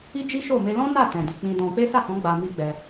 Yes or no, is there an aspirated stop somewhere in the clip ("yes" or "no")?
no